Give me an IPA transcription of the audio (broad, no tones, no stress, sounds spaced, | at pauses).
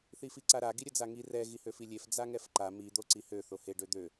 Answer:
θ i f i ǀ a ɾ a ɡ i ɾʲ ə d͡z a ŋ i r ɛ ɣ i h ø f i lʲ e f d͡z a ŋ ɛ f ǃ a m i d̪ o ǀ i h ø θ o h e ɖ ø d̪ ø